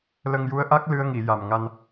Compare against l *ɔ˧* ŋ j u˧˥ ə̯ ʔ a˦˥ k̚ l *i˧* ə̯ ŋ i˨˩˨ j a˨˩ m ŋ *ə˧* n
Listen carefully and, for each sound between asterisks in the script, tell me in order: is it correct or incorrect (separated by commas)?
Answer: incorrect, incorrect, incorrect